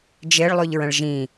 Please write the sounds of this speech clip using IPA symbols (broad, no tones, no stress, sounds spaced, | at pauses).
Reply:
d͡ʒ e ɭ lˠ ʉ ʎ ɹ ə̃ ɭ ʒ ĩ